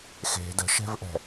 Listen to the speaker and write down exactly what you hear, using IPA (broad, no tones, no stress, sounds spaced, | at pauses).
x e̤ d ə̤ ʃ ɛ̤ v ʔ ɛ̤